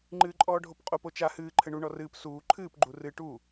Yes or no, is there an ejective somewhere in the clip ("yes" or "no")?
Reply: yes